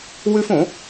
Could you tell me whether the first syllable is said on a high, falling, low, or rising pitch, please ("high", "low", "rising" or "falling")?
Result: high